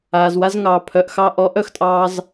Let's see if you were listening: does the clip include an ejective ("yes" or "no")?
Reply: yes